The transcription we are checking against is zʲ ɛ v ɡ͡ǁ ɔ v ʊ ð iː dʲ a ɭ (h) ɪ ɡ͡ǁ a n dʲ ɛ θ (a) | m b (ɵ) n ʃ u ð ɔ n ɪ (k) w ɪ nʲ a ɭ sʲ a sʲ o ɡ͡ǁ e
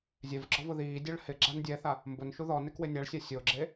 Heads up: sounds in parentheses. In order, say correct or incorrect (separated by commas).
correct, correct, incorrect, correct